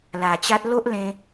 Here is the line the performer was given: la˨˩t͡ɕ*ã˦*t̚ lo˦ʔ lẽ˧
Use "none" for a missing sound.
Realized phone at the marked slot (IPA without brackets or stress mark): a˦